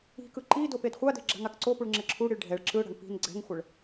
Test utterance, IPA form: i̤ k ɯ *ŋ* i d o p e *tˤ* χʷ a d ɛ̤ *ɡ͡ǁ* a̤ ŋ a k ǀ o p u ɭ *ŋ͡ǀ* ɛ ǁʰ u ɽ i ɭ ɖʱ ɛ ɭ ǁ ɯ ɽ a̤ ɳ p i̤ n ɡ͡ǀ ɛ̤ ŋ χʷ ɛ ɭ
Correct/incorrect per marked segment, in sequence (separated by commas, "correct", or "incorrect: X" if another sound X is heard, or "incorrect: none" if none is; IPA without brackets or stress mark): incorrect: ǃ, incorrect: d, correct, incorrect: ŋ͡ǁ